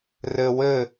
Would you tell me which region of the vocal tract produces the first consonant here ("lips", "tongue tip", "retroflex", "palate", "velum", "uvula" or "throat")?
tongue tip